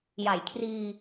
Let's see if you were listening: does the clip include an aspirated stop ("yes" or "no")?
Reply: yes